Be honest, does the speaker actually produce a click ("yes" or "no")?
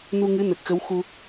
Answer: no